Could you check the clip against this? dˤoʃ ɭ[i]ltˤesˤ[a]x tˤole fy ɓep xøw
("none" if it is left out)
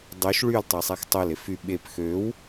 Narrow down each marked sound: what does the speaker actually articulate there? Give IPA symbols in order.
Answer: y, æ

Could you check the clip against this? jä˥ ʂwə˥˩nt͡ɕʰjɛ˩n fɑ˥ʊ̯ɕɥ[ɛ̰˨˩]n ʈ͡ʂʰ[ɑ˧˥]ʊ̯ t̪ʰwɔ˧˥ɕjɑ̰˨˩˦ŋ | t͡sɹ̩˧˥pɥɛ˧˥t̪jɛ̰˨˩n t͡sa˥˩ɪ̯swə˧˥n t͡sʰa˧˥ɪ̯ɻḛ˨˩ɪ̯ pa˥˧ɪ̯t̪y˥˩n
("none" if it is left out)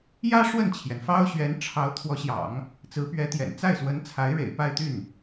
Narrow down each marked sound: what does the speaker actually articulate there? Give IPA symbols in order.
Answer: ɛ˧˥, ɑ˧˥

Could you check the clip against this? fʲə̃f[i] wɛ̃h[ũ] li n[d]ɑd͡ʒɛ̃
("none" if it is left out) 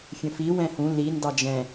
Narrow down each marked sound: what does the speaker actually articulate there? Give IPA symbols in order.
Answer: i, ũ, d

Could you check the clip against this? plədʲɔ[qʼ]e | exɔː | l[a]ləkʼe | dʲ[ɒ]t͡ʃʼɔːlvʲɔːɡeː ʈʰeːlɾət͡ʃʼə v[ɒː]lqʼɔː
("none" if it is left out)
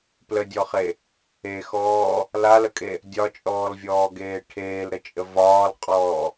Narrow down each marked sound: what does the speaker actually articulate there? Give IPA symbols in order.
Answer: χ, a, ɒ, ɒː

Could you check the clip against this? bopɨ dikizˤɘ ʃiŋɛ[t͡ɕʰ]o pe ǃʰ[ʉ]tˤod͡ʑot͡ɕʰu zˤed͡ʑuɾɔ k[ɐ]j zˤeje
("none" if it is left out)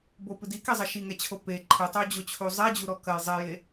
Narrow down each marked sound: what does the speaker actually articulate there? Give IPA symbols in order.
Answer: t͡ɕʰ, ɨ, ɐ

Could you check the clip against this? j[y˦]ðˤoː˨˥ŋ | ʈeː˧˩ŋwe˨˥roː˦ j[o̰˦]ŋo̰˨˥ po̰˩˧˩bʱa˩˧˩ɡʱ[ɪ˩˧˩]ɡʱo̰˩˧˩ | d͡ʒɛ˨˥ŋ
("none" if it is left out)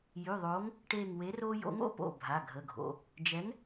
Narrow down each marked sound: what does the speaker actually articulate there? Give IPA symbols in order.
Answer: y˩˧˩, o̰˨˥, ə˩˧˩

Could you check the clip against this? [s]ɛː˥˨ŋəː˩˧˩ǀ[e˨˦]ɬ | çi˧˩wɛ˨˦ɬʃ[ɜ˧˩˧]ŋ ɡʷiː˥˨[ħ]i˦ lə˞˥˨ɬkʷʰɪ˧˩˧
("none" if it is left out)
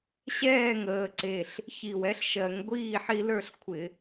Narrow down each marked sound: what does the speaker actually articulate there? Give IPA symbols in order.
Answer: ɕ, e˧˩, ɜ˧˩˧, ħ

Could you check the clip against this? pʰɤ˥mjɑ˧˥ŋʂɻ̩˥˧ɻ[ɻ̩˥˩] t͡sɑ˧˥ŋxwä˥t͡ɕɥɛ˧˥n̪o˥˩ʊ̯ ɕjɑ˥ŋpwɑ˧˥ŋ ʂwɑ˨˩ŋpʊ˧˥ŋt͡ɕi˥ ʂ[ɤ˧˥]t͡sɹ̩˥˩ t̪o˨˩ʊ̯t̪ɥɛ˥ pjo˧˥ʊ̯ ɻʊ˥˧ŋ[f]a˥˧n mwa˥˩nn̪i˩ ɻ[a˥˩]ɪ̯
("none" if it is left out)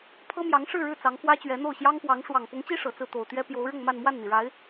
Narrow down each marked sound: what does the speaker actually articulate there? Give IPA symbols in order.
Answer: ɻ̩˥˩, ɤ˨˩, m, a˧˥

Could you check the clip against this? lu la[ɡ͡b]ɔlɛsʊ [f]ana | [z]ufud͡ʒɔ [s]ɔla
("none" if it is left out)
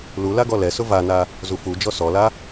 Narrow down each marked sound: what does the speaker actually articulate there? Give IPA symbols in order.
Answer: ɡ, v, z, s

